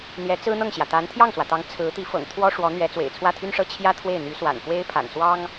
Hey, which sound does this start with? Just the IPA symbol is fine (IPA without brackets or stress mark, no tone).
n̪